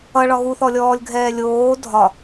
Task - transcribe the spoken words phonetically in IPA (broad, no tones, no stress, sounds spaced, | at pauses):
ʌ ɭ ɒ ɣ u θ ɔ lʲ ɔː lʲ ɡʱ ɛː lʲ oː dʱ ɒ